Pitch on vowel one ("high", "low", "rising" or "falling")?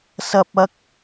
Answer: high